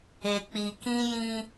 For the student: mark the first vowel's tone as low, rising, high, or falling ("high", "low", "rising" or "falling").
low